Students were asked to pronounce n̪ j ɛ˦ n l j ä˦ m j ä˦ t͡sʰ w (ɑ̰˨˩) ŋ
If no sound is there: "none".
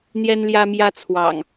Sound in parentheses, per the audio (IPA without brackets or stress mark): ɑ̰˨˩